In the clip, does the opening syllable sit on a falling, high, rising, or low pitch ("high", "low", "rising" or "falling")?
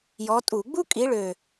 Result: rising